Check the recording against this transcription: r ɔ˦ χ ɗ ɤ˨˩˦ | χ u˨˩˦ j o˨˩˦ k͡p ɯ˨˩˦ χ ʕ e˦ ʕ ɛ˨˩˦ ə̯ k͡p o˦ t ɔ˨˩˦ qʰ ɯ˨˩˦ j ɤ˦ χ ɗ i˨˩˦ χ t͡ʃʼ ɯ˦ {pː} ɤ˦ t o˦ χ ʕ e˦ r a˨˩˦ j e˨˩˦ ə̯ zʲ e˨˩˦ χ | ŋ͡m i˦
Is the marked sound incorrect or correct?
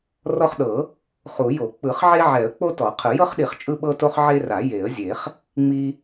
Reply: incorrect